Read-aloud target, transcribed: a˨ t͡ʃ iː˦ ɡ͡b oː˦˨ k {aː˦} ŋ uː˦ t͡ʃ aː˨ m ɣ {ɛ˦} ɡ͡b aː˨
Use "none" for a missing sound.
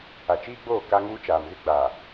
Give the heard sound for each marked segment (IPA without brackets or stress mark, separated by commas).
a˦, ɪ˦